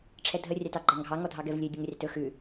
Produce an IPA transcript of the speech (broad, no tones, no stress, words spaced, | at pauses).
ʈ͡ʂʰɛdʱə rʲɑtɑɡ͡ǃɑŋɡʱɑ ŋɔdʱɑɡɛvlʲø dʲəŋrʲɑtɵ xʉ